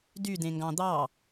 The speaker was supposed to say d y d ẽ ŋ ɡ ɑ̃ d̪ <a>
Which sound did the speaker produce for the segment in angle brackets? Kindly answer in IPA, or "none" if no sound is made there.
ɑ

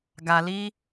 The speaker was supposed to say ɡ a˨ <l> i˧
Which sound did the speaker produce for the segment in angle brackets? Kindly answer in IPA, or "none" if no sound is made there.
l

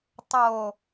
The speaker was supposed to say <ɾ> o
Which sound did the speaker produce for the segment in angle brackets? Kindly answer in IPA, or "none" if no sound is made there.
tˤ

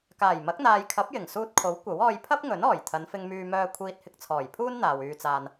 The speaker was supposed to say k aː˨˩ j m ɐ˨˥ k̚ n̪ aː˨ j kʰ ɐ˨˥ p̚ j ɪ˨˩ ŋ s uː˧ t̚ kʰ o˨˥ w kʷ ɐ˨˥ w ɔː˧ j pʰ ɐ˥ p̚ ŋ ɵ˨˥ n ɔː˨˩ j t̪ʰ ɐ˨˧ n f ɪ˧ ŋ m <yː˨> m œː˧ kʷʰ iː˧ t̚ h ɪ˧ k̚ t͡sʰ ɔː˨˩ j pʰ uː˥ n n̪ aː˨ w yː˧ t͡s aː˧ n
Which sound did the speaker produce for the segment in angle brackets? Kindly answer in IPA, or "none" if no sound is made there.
yː˧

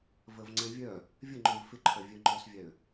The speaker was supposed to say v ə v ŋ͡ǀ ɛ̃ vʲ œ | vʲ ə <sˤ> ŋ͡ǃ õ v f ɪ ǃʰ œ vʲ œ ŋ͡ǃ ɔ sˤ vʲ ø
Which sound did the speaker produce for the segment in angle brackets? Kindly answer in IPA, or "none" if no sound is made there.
none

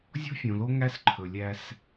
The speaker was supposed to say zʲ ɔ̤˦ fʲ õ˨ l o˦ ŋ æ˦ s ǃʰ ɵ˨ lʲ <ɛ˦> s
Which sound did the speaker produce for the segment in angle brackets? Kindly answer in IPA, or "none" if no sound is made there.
æ˦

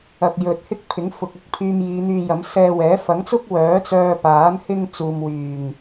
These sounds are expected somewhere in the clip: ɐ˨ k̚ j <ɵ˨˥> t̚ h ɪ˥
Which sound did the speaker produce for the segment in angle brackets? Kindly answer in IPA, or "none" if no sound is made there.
ɵ˨˥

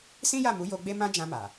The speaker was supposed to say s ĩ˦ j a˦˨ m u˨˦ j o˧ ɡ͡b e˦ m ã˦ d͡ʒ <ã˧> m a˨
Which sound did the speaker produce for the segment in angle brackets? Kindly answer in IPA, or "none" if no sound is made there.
ã˧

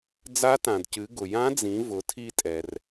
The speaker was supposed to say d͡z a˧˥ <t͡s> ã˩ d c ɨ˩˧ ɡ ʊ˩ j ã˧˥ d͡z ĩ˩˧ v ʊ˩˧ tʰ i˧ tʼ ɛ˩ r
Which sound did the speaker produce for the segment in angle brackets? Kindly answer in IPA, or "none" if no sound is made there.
t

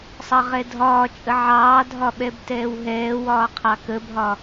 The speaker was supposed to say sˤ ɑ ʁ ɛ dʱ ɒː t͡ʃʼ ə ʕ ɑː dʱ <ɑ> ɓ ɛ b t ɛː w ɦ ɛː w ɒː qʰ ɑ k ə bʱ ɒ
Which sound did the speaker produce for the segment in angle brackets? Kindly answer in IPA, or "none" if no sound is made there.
ɒ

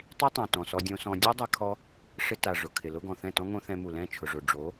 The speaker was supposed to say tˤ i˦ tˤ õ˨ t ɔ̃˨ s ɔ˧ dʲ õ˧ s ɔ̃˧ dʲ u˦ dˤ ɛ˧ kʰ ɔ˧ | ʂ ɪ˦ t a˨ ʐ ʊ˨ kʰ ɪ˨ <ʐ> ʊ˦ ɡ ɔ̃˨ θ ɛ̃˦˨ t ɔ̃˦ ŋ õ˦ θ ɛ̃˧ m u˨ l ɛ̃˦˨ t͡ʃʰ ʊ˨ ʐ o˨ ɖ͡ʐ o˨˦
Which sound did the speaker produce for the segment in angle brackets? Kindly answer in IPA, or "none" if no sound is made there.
l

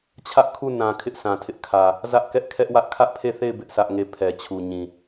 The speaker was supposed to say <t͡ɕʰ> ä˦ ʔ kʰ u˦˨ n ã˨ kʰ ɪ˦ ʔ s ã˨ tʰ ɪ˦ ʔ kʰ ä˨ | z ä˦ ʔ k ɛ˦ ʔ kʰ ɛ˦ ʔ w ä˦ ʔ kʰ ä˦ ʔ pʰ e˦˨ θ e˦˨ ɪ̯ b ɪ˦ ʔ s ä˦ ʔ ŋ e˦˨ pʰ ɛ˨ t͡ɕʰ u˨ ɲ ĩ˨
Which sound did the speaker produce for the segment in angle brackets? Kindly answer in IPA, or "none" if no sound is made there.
t͡ɕʰ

